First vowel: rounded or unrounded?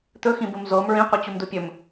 rounded